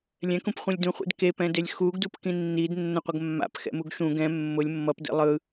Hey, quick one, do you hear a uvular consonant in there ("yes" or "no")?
yes